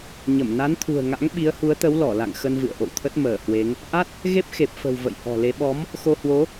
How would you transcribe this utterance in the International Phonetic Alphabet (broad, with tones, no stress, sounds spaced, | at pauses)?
ɲ ə˧˩ m n a˨˦ n t̪ʰ ṳ˨˩ ə̯ ŋ a̰˧˥ ŋ ɓ i˨˦ ə̯ h u˨˦ ə̯ t̪ ə˨˦ w l ɔ˧˩ l a̰˧˨ ŋ x ə˧ n v ɨ̰˧˨ ə̯ ʔ o̰˧˨ w t̪ʰ ə˦˥ t̚ m əː˧˩ h w e˨˦ ŋ | ʔ a˦˥ t̚ | ɣ e˦˥ p̚ x e˨˩ p̚ f ə̤˨˩ w v ə̰˧˨ j h ɔ̤˨˩ l e˨˦ ɓ ɔ˨˦ m | x o˧ h w o˨˦